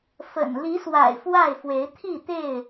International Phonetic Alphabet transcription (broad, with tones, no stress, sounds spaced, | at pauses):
f ə̰˨˩ n l i˨˦ s w a̰˨˩ ɪ̯ f w a˥˨ ɪ̯ f w e˨˦ ɪ̯ t̪ʰ i˥˨ t̪ e˥˨ ɪ̯